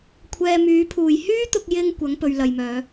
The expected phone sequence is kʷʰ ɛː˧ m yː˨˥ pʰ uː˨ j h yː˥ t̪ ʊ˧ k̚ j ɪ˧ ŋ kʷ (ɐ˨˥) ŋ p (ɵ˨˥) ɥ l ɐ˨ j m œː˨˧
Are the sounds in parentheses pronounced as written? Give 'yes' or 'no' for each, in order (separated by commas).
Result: yes, no